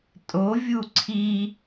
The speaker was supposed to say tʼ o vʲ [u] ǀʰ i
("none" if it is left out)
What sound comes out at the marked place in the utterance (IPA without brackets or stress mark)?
u